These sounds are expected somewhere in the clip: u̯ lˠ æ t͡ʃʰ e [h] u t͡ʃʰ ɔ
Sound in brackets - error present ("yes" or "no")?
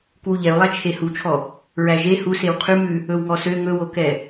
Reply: no